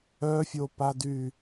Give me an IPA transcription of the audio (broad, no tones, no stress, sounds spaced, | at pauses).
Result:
œ fʲ o p a d y